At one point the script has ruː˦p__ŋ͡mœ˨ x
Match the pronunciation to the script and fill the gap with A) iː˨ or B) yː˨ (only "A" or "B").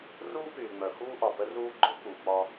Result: B